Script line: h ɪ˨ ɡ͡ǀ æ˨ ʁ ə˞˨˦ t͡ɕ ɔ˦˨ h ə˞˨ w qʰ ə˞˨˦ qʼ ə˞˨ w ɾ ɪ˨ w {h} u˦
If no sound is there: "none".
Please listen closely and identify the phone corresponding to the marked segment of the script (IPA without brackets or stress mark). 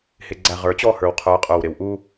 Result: ʔ